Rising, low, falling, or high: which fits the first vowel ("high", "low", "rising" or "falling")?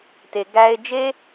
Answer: low